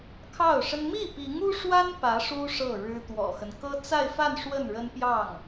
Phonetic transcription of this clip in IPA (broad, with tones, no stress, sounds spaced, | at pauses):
kʰ ɑ˥˩ ʊ̯ ʂ ə˥ n m i˥˩ p i˧˥ ŋ u˥ ʂ w a˥ n p ä˧˥ ʂ u˥ ʂ ɤ˥˩ ɻ ɻ̩˥ t̪ w ɔ̰˨˩ x ə˦ n k ɤ˥ t͡s a˥˧ ɪ̯ f a˥˧ n ʂ w ə˥˩ n ɻ ə˥ n p j ɑ˥˩ ŋ